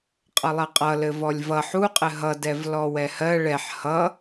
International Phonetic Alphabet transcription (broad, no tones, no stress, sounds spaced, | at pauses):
qʼ ʌ lˠ ɜ qʼ ʌ l ɘ v ɔ lʲ v ʌ ħ u qʼ ɘ ɦ ʌ d ɛ v l ɔ w ɛ h ɜ ɭ ɛ ħ h ʌ